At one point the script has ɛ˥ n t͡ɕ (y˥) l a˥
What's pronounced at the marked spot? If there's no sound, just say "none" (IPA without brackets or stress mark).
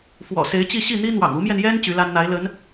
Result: y˧˥